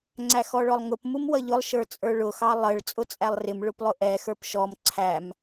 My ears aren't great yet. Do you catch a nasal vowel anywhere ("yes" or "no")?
no